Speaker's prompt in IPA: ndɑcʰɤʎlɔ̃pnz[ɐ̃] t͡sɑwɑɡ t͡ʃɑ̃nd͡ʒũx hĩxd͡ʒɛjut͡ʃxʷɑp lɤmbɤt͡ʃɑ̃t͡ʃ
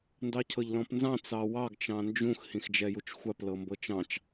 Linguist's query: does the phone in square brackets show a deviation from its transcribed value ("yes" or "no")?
yes